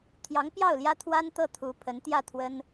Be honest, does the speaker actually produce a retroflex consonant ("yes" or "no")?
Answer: no